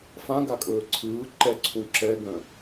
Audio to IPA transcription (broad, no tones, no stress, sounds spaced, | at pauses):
f ã ɡ a kʼ ɵː ǀʰ ɯː ǃ ɛ ǀʰ ũ ǁ ɛ ɡ œ̃